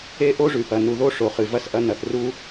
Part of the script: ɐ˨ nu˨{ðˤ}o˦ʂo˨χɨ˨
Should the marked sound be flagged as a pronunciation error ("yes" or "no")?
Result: yes